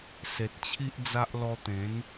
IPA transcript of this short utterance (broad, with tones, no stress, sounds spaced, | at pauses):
s e˨ t̚ t͡ɕʰ i˦ ʔ d͡z a˦ ʔ l ɔ˧ t̪ ẽ˨˦ n